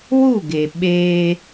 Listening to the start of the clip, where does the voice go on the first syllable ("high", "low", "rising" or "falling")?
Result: falling